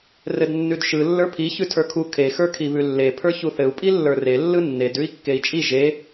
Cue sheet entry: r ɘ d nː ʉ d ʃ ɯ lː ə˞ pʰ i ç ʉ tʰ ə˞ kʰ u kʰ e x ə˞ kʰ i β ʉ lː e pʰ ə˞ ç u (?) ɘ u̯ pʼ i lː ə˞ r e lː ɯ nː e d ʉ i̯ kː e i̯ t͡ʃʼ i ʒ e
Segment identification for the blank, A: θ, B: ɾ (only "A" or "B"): A